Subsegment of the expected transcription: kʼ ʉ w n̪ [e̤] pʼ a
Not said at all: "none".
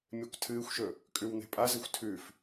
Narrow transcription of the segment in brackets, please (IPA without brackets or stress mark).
e̤